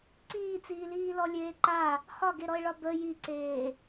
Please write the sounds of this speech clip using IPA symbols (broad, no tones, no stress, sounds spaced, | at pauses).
ǀ iː t͡s iː l iː l ɔ lʲ eː ǃ a | h ɒ ɡ e ɾ ɔ e̯ ɭ ɒ b ə j i ǀ eː